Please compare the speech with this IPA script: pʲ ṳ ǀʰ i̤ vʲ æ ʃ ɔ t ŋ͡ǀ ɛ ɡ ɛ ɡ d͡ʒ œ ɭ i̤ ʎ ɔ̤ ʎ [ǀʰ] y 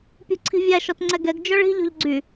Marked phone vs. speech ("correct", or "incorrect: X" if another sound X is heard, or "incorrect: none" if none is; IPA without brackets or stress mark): incorrect: ɡ͡ǀ